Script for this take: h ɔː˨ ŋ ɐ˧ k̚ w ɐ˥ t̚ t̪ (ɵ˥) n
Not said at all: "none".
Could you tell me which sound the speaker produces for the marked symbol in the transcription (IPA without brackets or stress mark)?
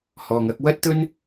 ɵ˥